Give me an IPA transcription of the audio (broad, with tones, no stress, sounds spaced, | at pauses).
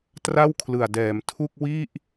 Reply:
t r a˥˩ w kʰ l ɯ˨˩ a̯ d ɛː˩˦ m tʰ u˥˩ k̚ w i˥˩ ʔ